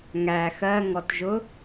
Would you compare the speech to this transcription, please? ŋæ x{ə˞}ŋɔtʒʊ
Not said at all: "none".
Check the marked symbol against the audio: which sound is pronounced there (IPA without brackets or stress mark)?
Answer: ɜ